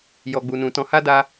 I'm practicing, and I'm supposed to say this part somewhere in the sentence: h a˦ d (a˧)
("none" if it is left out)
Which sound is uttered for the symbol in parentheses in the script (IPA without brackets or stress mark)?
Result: a˧